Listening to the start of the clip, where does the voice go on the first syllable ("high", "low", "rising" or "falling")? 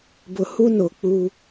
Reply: low